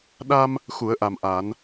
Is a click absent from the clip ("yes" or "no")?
yes